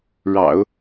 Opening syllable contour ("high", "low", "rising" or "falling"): low